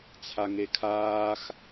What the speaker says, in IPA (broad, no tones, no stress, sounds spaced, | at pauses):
t͡sʰ a ŋ e kʰ aː x